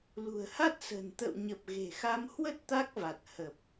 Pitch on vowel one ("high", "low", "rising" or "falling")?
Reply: low